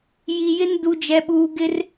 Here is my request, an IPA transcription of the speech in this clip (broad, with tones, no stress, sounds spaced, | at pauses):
j i˨ j ɪ˦ n d u˨ d͡ʒ ɛ˨ ɓ uː˨ ɡ ɪ˦ r